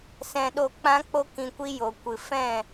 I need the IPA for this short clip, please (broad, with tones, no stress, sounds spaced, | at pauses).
s ɛ̃˧ ɗ o˦˨ k͡p ã˦ k͡p o˦ k ĩ˧ kʷ i˦ j o˨ kʷ ɨ˨ f ɛ̃˦˨